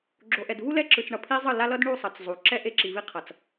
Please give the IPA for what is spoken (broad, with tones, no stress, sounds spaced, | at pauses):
ɡ͡ǁ o˨ ʔ ɛ˨ d v u˦ l ɛ˦ ǁ ɯ˨ t͡s ɳ ʌ˨ pʰ i˦ zˤ ɯ˦˨ l a˦ l ʌ˦ d ɳ u˦˨ sˤ ʌ˨ t͡s zˤ u˨ ǁ ɛ˦ ʔ e˦ ǁ i˨ v i˦ qʰ ʌ˨ t͡s